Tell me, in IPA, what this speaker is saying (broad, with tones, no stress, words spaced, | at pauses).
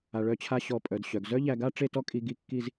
a˧ ɭœ˥˧t͡ɕʰa˥˧ ɕɔ˧˩pʼœ˩˧d ɕœ˩˧ɡ zœ˥ʎæ˧ɡa˥ ʈ͡ʂe˥˧tɔ˥kʼi˧ ɡi˥˧ kːi˥˧z